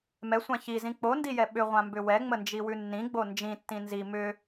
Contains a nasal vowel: yes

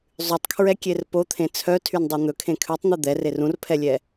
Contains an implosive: no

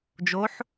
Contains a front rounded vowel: no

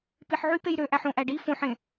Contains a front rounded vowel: yes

